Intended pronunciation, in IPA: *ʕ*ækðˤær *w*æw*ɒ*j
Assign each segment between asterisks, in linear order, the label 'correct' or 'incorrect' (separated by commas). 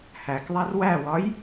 incorrect, correct, correct